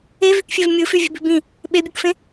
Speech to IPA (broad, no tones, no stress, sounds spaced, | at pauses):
e v y k fʲ e v mʲ ɯ f y vʲ e̤ b i̤ b ĩ | ɓ e bʲ ɯ k f ẽ